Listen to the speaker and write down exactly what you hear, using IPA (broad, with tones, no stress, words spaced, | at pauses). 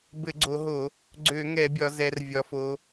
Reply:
bɘ˧˩˧ɡ͡ǀo˩˧ɦo˧˩˧ | ɡ͡ǀø˧˩˧ŋɛ˧˩˧bʲɒ˩˧ zɛ˩˧r vʲɒ˩˧fo˩˧